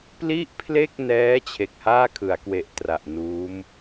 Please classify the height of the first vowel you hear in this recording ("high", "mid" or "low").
high